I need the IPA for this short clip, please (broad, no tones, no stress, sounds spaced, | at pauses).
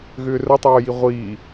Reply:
ɣ ʏː r ə tˤ oː j i ʁʷ iː